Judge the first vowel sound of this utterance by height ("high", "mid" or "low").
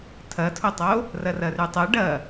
low